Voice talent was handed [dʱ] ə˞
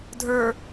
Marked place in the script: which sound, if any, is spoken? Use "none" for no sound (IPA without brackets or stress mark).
dʱ